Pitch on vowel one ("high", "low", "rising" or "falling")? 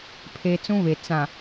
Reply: high